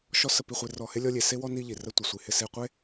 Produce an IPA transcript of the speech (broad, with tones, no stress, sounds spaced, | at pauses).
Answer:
ʃ ɔ˦ s ə˧ p i˧ χʷ e˧ r ɔ˧ h ɪ˦ lʲ ɔ˦ lʲ e˨ s e˦ w ɔ˦ n i˦ ʎ i˨ r ə˦ tʷ ɪ˨ sʷ i˨ h ɪ˧ s e˧ qʷ e˦